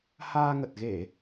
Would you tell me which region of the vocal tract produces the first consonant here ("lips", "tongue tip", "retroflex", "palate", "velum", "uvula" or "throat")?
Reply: throat